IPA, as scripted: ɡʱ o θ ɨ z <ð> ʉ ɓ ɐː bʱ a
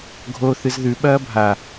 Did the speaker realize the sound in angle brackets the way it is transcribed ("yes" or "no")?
yes